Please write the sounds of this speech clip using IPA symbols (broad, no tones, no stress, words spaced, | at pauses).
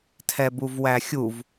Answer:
tʰɛbuvwæxʲuv